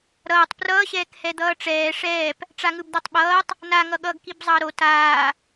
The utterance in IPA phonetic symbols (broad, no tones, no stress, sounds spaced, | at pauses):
ɾ ʌː tˤ p r ʌː ɕ ɛː k h ɛ d̪ ʌː ʈ͡ʂ ɛː ʂ ɛː p | ʈ͡ʂ a ŋ ɯ b d̪ a tˤ ɓ ʌː tˤ | n a ŋ ʌ ɠ ʌː ɡ k i b zˤ ʌː ɾ o t aː